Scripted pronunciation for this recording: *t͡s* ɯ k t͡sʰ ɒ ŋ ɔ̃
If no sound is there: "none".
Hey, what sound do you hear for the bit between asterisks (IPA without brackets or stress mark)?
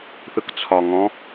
θ